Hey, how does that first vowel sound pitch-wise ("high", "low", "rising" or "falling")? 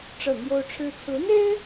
falling